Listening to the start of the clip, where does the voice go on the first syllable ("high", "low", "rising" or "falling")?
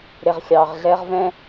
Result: low